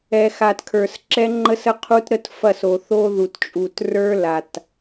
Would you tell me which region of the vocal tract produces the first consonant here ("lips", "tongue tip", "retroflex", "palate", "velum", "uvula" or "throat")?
velum